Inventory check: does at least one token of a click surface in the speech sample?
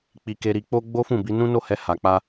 no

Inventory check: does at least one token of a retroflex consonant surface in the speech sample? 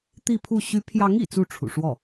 yes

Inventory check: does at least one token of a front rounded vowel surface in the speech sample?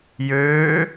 yes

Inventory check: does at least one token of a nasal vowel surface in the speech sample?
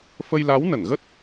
no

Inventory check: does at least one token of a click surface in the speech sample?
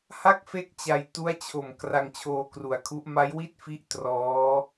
no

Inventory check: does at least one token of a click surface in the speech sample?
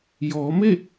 no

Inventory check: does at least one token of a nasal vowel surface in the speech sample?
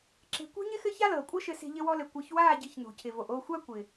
no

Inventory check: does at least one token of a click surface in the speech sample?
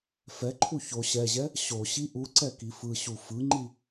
yes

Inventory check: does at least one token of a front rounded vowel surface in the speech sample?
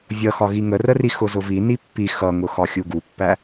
no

